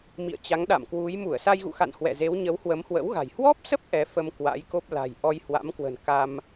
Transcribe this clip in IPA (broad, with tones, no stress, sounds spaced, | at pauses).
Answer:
m ḭ˧˨ ə̯ t͡ɕ a˨˦ ŋ ɗ a̰˧˨ m k w u˨˦ j m u˧˩ ə̯ s a˧ j ɣ ṵ˧˨ x a̰˧˨ n h w ɛ̰˧˨ z e˨˦ w ɲ ə˨˦ w h w ə˨˦ m h w ə̰˧˥ w ɣ a̤˨˩ j h w ɔ˦˥ p̚ s ə˦˥ p̚ ʔ ɛ˨˦ f ə˧ m k w a̰˧˥ j k o˦˥ p̚ l a̤˨˩ j ʔ ɔ˧ j h w a̰˧˥ m k w ə̤˨˩ n k a˧ m